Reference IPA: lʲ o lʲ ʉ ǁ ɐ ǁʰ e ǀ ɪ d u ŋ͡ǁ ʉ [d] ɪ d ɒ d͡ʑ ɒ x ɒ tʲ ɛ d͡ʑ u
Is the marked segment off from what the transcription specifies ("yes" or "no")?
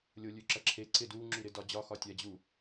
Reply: yes